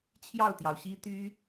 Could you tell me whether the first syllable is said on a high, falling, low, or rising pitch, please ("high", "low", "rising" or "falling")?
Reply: falling